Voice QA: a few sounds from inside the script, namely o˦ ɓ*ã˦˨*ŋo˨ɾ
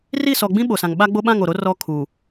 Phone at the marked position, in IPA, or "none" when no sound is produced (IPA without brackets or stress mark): ã˦˨